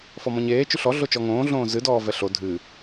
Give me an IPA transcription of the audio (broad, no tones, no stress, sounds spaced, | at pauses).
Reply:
f ɔ m ɔ̃ ɲ eː t͡ʃ ʉ ɬ ɔ ɮ o t͡ʃ ɔ ŋ õː ɮ õː z ɨ d ɔː v ɛ ɬ o dʱ ɨ